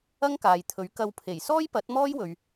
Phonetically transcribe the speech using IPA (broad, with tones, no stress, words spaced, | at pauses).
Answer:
ɐ˥ŋkaː˨jt̪ʰɵ˨˥ɥ kɐ˧wpʰe˨˩j sɔː˥jpɐ˨˥t̚mɔː˥j wɵ˧ɥ